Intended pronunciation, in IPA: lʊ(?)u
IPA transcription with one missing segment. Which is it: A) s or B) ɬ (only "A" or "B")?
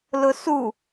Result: A